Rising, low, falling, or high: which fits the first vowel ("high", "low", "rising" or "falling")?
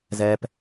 high